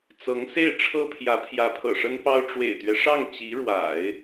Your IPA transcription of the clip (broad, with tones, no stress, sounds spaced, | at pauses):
t͡s ɤ˧˥ ŋ s e˥˩ ɪ̯ ʈ͡ʂʰ ɤ˥ pʰ j ä˧˥ pʰ j ä˧˥ pʰ ɤ̰˨˩ ʂ ə˥ n p ɑ˥ ʊ̯ ʈ͡ʂ w ḛ˨˩ ɪ̯ t̪ ɥ ɛ˦ ʂ ɑ˥˩ ŋ t͡ɕ i˧˥ ɻ w a̰˨˩˦ ɪ̯